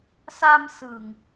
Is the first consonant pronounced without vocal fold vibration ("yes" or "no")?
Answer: yes